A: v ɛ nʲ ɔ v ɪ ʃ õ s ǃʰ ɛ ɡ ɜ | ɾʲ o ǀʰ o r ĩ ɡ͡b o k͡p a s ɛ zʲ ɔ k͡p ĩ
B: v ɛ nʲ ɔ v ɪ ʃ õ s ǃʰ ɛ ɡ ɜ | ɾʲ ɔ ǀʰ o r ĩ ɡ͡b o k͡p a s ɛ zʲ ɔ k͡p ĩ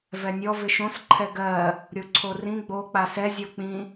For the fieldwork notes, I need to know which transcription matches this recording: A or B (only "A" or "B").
A